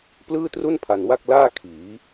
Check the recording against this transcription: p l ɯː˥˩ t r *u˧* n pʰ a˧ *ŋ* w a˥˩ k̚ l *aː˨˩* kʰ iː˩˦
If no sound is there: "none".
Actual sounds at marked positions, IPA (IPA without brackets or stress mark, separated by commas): u˥˩, n, aː˥˩